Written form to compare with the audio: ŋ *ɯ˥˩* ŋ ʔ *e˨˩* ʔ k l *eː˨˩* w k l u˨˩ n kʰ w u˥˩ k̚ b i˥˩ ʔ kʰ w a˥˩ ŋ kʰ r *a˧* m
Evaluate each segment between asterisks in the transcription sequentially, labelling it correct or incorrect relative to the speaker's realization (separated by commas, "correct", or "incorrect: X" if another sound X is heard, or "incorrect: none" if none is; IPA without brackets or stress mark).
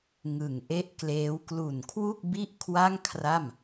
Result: incorrect: ɯ˨˩, incorrect: e˥˩, incorrect: eː˦˥, incorrect: a˥˩